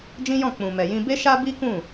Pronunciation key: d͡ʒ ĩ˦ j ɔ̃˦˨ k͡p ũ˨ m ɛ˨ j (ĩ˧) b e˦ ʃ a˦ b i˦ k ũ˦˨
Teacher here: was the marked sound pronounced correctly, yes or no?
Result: yes